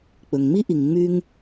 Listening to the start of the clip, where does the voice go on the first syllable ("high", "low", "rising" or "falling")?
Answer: low